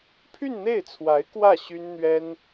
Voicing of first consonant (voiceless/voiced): voiceless